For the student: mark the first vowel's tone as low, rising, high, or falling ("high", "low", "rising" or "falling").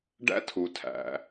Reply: high